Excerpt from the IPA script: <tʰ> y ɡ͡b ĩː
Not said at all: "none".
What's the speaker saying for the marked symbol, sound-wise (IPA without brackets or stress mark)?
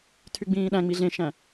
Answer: tʰ